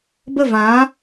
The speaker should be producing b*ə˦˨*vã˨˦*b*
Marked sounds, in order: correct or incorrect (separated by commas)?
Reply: correct, incorrect